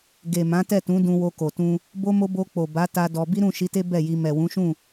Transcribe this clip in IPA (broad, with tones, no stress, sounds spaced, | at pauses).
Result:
ɡ e˨ m ã˨˦ t ɛ˦˨ t ũ˨˦ d ũ˧ w o˧ k o˨ t ũ˧ | b o˦ m o˦ b o˧ k͡p o˨ b a˨˦ t a˧ d ɔ˧ b i˦ ɾ ũ˦˨ ʃ i˨˦ t e˦ b ɛ˦˨ j i˧ m ɛ˨ w ũ˨˦ ʃ ũ˦˨